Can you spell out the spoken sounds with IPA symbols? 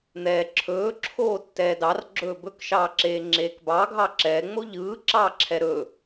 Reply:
n̪ ɛː ǁʰ ɵː ǁʰ oː tː ɛː d ɑ r ɡ͡ǁ ɵː b ɵ k ʃ ɑː ǁ eː ŋ͡ǁ eː k b ɑ ɡʱ ɑ ǁ ɛː ŋ͡m o ʎ ɯː ǁ ɑː ǁʰ ɛ ɾ ɵ

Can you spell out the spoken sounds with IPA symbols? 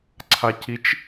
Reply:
ǀʰ a c i t͡ʃ

